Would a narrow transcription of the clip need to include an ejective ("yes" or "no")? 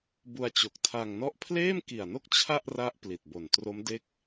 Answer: no